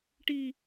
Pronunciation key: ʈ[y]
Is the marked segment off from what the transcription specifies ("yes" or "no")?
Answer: yes